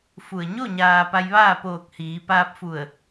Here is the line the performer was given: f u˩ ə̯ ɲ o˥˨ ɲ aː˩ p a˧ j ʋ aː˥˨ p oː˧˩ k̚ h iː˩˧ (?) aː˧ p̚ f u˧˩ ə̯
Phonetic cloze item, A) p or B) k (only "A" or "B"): A